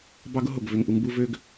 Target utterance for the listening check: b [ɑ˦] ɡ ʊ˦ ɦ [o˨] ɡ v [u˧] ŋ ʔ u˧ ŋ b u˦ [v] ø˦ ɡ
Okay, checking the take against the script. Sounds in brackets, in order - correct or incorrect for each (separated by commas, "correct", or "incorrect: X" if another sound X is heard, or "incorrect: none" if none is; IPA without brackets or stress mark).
correct, correct, incorrect: ø˧, correct